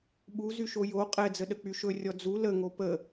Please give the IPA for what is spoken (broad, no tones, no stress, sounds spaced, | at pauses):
ɓ u z y ʃ o j o qʼ ɛ d͡z ə ɗ ə k͡p y ʃ ɵ rʲ ɔ d͡z u l ə ŋ o p ə